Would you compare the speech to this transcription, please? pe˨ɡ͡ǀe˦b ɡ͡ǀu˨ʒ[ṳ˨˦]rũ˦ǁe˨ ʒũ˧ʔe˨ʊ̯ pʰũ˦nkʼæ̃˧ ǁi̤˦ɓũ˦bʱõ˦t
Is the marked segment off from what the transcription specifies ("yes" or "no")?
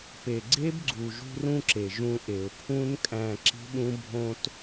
yes